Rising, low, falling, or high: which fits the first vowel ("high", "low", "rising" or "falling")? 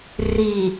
low